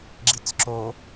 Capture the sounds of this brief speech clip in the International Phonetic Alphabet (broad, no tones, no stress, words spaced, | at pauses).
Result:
ɡ͡ǁit͡sǁo